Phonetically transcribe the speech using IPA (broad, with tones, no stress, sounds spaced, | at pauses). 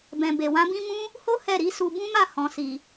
b ɛ̃˨ b e˨ w ã˨˦ b ĩ˦ m ũ˦ | h o˦ h ɛ˦˨ ɾ i˨˦ s u˧ b ũ˦ m a˦˨ h ɔ̃˨ s i˨